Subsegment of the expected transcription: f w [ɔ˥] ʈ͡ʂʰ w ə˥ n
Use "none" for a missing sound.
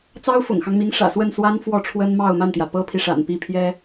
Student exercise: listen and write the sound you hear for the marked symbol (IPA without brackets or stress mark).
ɔ˥˩